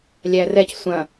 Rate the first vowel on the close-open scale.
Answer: open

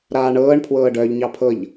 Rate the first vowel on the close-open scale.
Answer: open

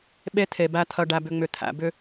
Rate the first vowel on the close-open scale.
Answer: mid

